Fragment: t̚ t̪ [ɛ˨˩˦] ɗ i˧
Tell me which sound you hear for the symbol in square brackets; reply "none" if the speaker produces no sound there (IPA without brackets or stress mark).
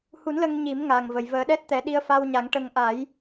ɛ˨˩˦